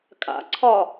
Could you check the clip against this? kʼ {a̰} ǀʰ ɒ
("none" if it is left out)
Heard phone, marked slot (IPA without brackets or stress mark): a̰